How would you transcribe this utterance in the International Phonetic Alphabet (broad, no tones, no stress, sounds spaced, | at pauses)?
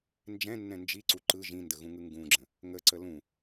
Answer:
n d͡ʒ ɛ̃ nː ɛ̃ n d͡ʒ i ǀ u ǃ ɯ ʒ ĩ n d ə ɣ ũ ŋ ɯ ŋ ɡ ũ ɡ͡ǁ ə̃ | ŋ ə ǀ ə l ũ